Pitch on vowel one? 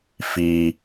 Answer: low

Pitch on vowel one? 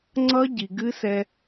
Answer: high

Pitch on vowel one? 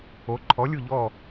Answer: rising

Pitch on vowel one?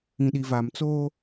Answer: low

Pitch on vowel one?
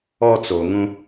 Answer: high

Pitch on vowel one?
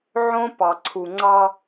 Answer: high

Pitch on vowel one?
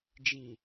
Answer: low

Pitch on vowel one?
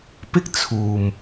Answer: high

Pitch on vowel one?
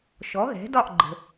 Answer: rising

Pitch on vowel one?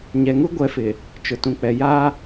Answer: low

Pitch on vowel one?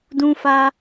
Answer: high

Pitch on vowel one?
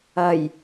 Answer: low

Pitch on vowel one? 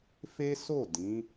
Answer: high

